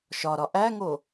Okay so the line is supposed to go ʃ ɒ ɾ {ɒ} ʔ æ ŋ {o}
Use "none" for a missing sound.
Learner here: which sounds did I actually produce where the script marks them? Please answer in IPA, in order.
ɒ, o

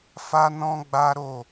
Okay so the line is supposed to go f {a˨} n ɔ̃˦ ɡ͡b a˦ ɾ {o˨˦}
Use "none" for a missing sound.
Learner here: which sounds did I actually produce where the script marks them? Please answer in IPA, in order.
a˦, o˦˨

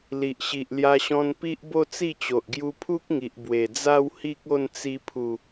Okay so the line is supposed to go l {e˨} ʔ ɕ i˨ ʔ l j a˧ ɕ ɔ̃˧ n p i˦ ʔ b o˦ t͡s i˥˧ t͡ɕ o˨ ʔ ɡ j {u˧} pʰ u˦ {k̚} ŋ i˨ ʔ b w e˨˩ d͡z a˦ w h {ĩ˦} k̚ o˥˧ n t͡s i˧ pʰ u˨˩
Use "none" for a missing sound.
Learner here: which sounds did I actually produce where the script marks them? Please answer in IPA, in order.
i˨, u˧, k̚, i˦

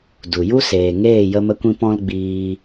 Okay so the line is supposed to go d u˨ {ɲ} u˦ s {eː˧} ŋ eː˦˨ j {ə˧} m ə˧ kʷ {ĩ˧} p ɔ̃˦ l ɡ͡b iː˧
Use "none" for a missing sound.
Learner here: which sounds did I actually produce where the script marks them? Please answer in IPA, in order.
j, eː˨, ə˧, ĩ˧

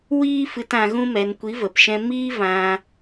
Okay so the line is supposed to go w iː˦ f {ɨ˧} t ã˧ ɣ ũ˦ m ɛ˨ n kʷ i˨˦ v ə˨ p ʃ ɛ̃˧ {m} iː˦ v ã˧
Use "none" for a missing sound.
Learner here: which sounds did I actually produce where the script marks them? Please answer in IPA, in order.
ɨ˧, m

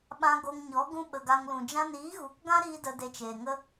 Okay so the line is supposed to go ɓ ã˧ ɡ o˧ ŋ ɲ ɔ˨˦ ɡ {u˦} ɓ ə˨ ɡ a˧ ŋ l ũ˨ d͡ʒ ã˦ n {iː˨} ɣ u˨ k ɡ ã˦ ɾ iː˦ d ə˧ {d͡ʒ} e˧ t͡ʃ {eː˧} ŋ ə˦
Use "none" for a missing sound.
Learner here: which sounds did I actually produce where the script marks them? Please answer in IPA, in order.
ũ˦, iː˨˦, d, eː˨

